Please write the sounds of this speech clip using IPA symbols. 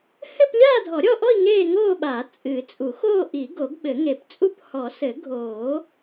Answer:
hɘ˥˧p lʲaː˥˧dʱɔ˨˩˦ɾʲɔ˥˧ʔɔ˥˧i̯ ŋeː˥˧ŋoː˥˧ɓaː˨˩˦ t͡sʼɨ˨˩˦t͡sʼu˨˩˦xoː˥˧ʔi˨˩˦ ɡo˨˩˦ɡɓɘ˨˩˦ŋe˨˩˦pt͡sʼu˥˧p hɔ˨˩˦ sɘ˨˩˦ɡʱoː˨˩˦

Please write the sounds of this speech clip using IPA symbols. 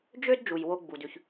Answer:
d͡ʒø˥d d͡ʒu˩jwo˧ ɡ͡bu˩dʉ˩ç

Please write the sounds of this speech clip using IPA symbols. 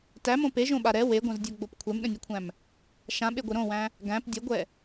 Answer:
tæmõ peʒõɓa ɾɛ weɡʷãzdʲoɡ͡bop kʷʰɛmɗə̃nʲɛkʷʰæ̃m | ʃãɓeɡʷɛ ɾõwæ̃ | ɡæ̃p dʲəɡʷɛ

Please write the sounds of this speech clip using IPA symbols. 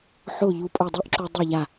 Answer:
ħo˥˩ ʎu˧pʼo˥˩ dˤʊ˥ʔǁu˧ dˤe˥˩ ʎa˥˩

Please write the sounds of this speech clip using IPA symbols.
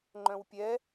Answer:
ŋ͡ǃœ̃wpʲɛ

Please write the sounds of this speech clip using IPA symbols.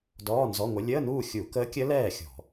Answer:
dɔː˧˥˧nzɔ˧˥˧ŋʷə˧˥ lʲəː˧˥˧nuː˥˨ xʲu˧˩˧kəː˧˥kʲə˧˥ lɛː˥˨xʲɔ̤˧˩˧

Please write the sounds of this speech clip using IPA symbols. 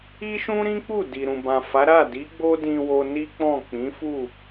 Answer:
i˦ʃũ˦ɾĩ˦k͡pu˦˨ di˨ɾũ˨bã˨fa˨˦ ɾa˦˨di˨˦ ɡ͡bo˦dĩ˧wo˧ ni˦k͡pɔ̃˦˨ k͡pĩ˨˦fu˦˨

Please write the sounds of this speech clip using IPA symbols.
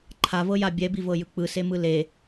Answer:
ǃʰavɤja bʲɛbivɤjɯ k͡pɯsemɯ le

